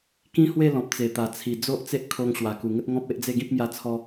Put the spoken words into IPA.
kĩ˦hwe˥˧lɔ̃˨p̚ t͡se˨˩t̪a˨˩t͡sʰi˨˩ d͡zo˦ʔt͡se˦ʔ kʰo˧ŋ ɕwa˨˩ku˨˩ŋə˦t̚ ŋɔ̃˦p̚e˦ʔd͡ze˥˧ɡĩ˦p̚ mja˧t͡sʰɔ˧

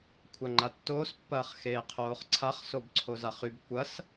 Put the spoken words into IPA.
kʷʰaŋ͡ǃatːoːs pːɐːχxeːqʰoːχǀʰaχ sobǀʰozaχyb kʷɐs

